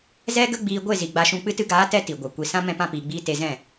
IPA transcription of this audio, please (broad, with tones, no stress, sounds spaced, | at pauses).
z ɛ˦ ɡ ə˦ ɡ͡b iː˧ ɡʷ e˦˨ z i˨ ɡ͡b a˧ ʃ ũ˧ k͡p ɨ˧ t ɨ˧ ɡ aː˨˦ t ɛ˧ t i˨ ɡʷ a˨ kʷ i˨ s ã˧ m ɛ̃˦ p ã˦ p iː˧ ɡ͡b iː˦ t e˧ z ɛ̃˦˨